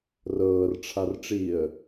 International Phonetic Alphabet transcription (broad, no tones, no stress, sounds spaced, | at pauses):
r ɤː r ʈ͡ʂʰ a r ʈ͡ʂ i ə̯